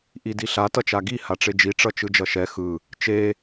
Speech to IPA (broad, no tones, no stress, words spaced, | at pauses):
ʔidiɬa tʌt͡ʃaɡi haʈ͡ʂed͡ʒi ʈ͡ʂʌt͡ʃɯd͡ʒʌʃɛ xɯ | t͡ʃe